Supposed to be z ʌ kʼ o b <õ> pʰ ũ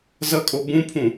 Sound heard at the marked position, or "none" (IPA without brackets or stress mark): ũ